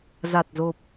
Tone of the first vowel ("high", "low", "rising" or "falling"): low